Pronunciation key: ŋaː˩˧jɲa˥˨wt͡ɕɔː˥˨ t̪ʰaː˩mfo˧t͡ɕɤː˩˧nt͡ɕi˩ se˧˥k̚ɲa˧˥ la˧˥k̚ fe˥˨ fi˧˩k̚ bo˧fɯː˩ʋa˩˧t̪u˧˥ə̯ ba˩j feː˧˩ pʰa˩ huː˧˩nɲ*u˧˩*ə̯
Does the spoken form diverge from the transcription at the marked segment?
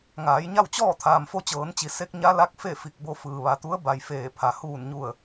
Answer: no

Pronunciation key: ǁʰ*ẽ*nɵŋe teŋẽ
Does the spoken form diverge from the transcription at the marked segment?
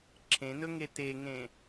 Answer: no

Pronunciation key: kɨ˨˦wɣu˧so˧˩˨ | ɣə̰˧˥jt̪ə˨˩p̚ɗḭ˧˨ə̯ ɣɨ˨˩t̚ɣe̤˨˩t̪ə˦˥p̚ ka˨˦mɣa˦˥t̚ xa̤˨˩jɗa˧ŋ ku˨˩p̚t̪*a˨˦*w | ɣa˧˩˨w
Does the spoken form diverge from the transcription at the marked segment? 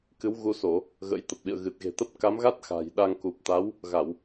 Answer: no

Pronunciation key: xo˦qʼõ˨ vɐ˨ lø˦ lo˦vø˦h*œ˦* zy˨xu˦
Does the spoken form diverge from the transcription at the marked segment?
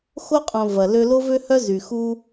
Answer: no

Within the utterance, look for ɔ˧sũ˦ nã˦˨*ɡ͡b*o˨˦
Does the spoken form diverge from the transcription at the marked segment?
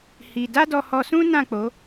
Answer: yes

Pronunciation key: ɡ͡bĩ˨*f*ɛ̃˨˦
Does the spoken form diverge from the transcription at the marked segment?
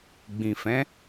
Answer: no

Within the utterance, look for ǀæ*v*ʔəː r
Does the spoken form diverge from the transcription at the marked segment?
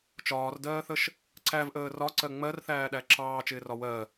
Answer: no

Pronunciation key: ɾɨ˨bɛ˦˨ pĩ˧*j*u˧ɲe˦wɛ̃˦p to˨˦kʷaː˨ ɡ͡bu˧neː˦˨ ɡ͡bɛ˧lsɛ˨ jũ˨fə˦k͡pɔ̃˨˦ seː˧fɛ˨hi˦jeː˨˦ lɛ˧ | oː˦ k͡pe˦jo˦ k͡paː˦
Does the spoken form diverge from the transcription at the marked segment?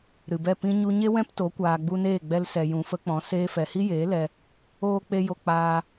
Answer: yes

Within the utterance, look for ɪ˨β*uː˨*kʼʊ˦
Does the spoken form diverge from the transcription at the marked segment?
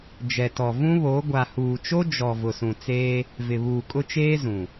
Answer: no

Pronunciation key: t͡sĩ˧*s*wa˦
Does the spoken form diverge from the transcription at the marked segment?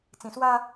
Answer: no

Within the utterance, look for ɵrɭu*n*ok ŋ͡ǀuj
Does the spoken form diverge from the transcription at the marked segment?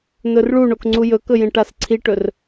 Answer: yes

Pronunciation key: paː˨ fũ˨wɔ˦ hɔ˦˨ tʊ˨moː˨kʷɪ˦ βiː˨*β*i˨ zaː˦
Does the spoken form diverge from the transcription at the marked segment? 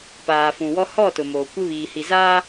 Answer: yes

